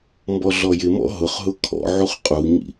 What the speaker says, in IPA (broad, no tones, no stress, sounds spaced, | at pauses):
m b ɔ ɮ ɔ j ɪ m ɔ̰ ɦ ʊ χ ɦ ʊ kʰ ɔ̰ ʕ u χ qʼ u ɲ ḭ